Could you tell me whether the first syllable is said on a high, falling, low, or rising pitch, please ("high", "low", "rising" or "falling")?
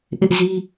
high